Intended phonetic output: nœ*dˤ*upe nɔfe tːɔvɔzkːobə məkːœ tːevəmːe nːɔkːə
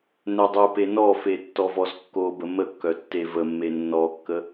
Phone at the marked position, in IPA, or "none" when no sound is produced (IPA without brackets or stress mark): dˤ